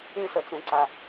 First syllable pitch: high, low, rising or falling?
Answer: high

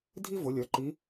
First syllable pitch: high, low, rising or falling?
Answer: high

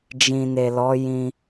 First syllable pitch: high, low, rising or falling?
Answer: low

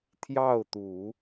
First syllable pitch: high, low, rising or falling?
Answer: falling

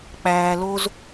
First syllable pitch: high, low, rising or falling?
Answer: low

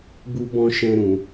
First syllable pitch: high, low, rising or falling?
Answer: high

